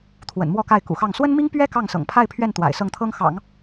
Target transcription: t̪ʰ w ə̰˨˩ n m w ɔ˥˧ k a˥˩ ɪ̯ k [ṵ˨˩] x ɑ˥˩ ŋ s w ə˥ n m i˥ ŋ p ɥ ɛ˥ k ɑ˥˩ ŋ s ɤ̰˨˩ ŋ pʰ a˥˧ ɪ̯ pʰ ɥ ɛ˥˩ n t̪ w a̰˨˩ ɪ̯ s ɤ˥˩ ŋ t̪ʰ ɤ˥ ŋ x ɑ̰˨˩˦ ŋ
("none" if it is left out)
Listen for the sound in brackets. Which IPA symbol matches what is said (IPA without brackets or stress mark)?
ṵ˨˩